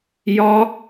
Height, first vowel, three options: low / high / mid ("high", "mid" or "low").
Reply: low